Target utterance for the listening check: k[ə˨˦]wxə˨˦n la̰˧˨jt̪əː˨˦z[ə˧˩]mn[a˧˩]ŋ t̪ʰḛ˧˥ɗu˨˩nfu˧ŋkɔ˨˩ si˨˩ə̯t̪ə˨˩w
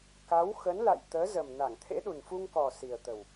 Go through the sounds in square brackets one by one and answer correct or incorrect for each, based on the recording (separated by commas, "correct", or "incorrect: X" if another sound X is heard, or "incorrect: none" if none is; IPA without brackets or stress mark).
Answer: incorrect: a˨˦, incorrect: ə˨˩, correct